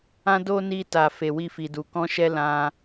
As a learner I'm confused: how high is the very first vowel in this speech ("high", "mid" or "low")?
low